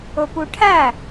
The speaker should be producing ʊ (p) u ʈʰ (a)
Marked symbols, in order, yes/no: yes, no

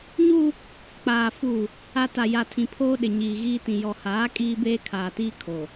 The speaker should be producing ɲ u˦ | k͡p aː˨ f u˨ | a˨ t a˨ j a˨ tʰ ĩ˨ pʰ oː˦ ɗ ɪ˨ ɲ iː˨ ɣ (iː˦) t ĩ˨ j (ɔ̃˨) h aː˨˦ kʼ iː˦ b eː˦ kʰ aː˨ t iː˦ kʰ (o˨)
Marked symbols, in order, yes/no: yes, no, yes

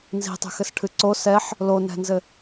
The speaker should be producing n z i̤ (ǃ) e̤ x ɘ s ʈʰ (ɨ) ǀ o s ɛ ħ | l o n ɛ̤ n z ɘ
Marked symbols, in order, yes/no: no, yes

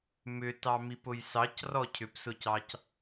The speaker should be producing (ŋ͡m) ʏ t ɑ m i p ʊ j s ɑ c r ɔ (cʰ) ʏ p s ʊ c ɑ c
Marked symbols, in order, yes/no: no, yes

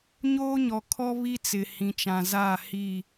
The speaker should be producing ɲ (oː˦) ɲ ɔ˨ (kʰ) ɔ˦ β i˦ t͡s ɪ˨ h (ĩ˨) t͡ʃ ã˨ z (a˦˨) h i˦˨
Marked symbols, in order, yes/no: yes, yes, yes, yes

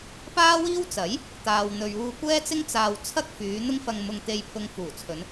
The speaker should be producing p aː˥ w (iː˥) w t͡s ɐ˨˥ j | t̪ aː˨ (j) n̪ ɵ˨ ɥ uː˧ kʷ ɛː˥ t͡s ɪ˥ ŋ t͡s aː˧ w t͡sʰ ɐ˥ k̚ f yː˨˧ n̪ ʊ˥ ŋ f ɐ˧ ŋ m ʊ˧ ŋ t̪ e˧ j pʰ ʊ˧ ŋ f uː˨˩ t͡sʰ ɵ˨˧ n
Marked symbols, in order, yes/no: yes, no

